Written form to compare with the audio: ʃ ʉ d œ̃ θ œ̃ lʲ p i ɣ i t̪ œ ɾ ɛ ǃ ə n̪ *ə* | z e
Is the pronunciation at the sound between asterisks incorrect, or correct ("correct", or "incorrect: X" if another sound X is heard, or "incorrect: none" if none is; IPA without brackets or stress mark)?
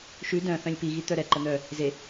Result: incorrect: œ